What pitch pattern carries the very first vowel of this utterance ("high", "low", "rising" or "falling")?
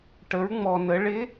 rising